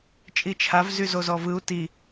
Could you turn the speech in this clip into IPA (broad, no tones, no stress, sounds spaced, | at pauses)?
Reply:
t͡ʃʼ i t͡ʃʰ a v z y z o z ɔ v ɯ u̯ t i